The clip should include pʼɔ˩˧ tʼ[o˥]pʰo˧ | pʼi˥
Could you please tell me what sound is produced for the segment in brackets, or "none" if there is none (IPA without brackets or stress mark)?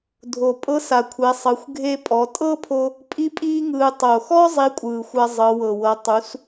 ɤ˥